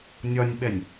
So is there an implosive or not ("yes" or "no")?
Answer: yes